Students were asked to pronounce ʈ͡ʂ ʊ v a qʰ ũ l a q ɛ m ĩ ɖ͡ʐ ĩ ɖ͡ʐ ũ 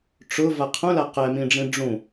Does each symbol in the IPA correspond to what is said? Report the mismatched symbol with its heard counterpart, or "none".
none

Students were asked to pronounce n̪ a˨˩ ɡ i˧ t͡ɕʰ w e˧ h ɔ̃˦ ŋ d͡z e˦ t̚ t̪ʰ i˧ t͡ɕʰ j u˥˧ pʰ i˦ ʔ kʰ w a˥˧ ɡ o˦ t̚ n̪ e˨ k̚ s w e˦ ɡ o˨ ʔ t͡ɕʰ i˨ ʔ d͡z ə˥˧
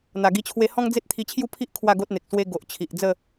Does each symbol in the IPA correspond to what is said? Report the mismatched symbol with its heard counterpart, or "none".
none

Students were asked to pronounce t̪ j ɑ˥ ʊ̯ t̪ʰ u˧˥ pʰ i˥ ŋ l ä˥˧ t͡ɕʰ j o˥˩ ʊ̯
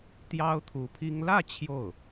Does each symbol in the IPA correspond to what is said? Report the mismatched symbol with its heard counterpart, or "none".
none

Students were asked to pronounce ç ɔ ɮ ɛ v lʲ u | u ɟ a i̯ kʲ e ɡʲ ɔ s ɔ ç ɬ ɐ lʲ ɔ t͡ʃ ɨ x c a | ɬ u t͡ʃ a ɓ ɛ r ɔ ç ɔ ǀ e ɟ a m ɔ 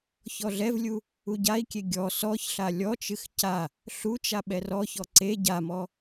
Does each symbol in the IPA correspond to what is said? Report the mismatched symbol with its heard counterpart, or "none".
ɐ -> a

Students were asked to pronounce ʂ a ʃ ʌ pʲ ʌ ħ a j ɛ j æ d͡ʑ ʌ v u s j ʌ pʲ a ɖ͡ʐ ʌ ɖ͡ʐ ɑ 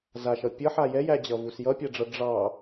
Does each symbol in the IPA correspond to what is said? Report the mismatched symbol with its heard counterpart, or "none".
ʂ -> z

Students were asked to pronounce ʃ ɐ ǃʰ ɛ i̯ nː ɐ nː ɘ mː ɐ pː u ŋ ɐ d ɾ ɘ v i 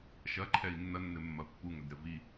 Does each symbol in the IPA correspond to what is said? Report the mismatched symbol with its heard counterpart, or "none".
none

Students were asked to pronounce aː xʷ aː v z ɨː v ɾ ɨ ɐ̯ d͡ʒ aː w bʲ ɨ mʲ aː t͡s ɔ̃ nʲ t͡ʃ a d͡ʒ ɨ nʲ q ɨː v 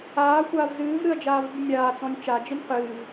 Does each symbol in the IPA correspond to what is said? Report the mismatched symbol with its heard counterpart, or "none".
w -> v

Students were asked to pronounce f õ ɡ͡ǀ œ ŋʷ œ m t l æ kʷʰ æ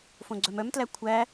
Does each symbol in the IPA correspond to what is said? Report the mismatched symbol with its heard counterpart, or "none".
ŋʷ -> m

